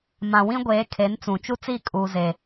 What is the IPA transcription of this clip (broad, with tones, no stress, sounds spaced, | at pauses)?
m ã˨ w ĩ˦ ɡʷ eː˨˦ kʰ e˨˦ n t͡s ũ˨ t͡ʃ u˦ t͡s i˦˨ kʼ uː˨ z e˨